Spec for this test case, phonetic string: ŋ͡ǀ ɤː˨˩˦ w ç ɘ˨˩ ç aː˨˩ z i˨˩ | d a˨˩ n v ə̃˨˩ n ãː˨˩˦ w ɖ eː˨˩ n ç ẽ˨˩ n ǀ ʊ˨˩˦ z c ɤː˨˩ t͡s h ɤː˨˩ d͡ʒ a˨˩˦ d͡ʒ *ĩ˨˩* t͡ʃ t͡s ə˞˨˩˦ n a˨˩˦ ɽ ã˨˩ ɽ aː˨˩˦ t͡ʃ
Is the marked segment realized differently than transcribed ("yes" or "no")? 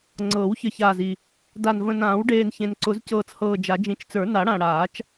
no